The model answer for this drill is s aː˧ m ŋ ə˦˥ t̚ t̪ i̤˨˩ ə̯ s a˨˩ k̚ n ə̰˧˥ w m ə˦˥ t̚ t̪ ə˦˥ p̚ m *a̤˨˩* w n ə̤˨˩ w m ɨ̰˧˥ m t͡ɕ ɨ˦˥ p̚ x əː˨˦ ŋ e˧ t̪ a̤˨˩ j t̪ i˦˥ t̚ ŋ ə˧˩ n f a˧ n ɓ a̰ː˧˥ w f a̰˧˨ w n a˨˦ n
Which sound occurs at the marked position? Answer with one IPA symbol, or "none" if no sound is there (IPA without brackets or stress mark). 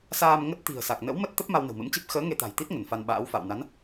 a˧